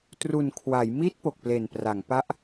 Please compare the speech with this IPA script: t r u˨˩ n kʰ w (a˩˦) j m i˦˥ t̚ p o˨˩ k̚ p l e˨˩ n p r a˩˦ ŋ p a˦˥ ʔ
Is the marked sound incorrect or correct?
correct